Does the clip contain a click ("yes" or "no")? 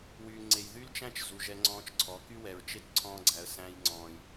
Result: yes